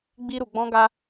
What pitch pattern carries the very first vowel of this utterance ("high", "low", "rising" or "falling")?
high